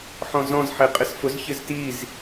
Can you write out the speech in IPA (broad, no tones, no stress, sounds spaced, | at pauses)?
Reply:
ħ ɔ̃ z ɔ̃ z ħ e qʼ ɪ s f ʊ z ç ɪ z t i z